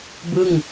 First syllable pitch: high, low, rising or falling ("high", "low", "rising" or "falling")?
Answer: falling